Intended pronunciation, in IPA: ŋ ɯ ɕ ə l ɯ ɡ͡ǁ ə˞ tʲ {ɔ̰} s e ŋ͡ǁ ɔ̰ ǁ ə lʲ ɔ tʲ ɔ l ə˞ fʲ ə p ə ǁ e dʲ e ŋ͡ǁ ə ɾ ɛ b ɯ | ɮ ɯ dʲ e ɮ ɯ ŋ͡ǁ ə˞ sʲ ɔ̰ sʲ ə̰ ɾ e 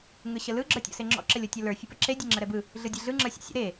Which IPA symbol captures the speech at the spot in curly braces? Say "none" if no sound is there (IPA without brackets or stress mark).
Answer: ɔ̰